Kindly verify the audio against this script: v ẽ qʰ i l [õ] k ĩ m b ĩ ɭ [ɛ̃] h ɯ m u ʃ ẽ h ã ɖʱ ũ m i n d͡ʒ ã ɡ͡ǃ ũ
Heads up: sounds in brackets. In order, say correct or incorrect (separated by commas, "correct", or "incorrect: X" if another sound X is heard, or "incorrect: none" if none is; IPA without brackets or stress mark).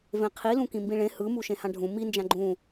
incorrect: ũ, incorrect: ẽ